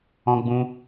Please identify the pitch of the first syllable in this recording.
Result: high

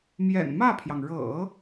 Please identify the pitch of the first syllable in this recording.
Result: low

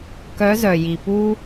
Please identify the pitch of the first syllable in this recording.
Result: rising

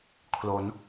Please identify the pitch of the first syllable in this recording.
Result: rising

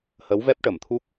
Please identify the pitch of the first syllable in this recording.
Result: rising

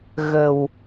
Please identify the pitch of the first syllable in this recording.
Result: low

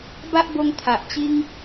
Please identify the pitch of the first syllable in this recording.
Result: high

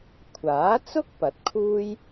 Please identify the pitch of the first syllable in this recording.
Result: rising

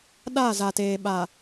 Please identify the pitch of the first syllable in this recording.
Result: falling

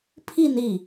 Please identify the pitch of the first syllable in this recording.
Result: falling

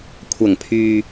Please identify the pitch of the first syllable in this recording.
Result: low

